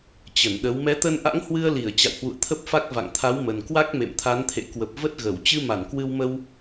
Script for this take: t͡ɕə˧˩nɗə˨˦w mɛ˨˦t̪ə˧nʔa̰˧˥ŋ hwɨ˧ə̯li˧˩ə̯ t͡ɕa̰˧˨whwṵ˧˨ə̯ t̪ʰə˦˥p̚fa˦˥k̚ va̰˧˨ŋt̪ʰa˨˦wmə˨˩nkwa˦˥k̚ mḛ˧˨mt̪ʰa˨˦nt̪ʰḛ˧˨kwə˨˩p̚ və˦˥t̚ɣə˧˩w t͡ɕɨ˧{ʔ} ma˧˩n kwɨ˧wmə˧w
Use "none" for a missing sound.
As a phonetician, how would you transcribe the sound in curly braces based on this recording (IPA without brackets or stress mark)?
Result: none